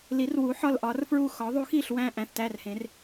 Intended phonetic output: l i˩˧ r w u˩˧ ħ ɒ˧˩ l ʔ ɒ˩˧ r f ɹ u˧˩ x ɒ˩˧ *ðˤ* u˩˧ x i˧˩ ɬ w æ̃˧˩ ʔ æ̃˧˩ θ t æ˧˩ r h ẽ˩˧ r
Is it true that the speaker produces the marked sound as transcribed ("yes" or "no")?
yes